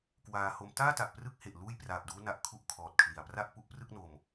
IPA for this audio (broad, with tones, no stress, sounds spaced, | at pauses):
k w aː˧ h o˦˥ m t aː˥˩ t a˨˩ ʔ p r ɯ˦˥ k̚ h e˨˩ ʔ l uː˥˩ j p r aː˨˩ p̚ d uː˦˥ n a˨˩ ʔ kʰ u˦˥ ʔ kʰ ɔː˨˩ t̚ kʰ l i˨˩ a̯ p r a˥˩ ʔ p u˦˥ ʔ p r ɯ˥˩ k̚ n o˧ m